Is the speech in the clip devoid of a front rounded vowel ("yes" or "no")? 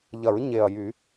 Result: no